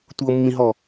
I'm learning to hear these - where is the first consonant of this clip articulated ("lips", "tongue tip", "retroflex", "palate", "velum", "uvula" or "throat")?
tongue tip